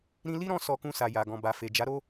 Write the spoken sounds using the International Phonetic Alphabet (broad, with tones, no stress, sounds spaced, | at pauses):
ɾ ĩ˧ l i˦ ɾ ɔ̃˧ s ɔ˧ k ũ˧ s a˨ j a˨ ɡ ɔ̃˨ b a˨ f e˨ d͡ʒ a˨˦ ɾ o˦